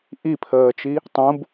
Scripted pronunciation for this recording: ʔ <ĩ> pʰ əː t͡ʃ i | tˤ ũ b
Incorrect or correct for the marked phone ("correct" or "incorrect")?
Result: incorrect